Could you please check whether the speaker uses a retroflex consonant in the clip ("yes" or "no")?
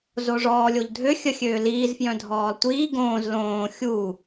yes